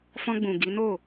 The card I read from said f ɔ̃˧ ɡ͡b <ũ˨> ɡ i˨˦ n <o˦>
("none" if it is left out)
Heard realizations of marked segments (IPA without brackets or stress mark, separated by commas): ũ˨, o˦˨